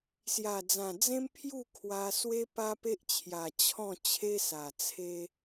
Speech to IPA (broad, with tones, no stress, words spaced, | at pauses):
sja˨˩d͡zã˨˩ d͡zẽ˦mpʰju˥˧ kʰwa˧ swe˦pa˦pe˦ʔt͡ɕʰja˨˩ t͡ɕʰɔ̃˥˧ t͡ɕʰe˦sa˨˩t͡sʰe˦